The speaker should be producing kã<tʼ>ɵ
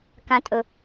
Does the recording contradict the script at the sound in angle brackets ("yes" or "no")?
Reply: no